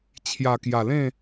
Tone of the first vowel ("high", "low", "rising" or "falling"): low